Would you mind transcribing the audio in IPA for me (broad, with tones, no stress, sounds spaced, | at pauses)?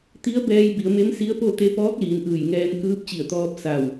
t̪ i˧˥ ə̯ b ɛː˧ j b i˩˧ ə̯ m e˧˥ m s i˧˥ ə̯ p o˥˨ t̪ e˧˥ p ɔː˧˥ k̚ l iː˩˧ n ʔ ɯː˧˩ j ŋ ɛː˧ n k ɯː˧˥ p̚ t͡ɕ i˧˩ ə̯ t̪ ɔː˧ p̚ s a˧˩ w